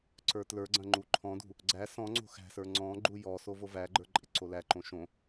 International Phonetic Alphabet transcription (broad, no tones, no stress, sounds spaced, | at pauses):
ǀ ə˞ t l ə˞ ɡ͡ǀ ɐ̃ ŋ͡ǃ u ǃʰ ɔ̃ d ṳ | ɡ͡ǀ æ s ɔ̃ ŋ͡ǀ o̤ x æ̤ s ə˞ ŋ͡ǀ ɔ̃ ɡ͡ǃ u j ɔ s o v o v æ ɡ͡ǃ ə˞ ǃʼ ɪ ǀ o l æ ǃ õ ʃ õ